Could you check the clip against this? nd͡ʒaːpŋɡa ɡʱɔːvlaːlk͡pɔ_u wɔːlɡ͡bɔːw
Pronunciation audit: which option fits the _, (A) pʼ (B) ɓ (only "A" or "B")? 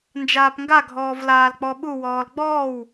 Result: B